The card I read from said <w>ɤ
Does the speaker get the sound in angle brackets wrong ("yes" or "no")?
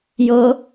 yes